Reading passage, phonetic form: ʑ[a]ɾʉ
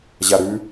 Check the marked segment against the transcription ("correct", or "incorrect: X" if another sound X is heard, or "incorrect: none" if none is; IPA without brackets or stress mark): correct